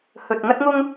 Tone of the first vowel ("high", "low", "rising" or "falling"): low